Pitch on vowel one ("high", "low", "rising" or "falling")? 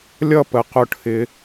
falling